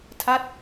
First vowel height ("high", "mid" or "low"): low